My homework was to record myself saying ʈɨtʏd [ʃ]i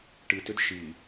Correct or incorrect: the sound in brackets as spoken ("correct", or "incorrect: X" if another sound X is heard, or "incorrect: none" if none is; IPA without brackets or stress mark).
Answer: correct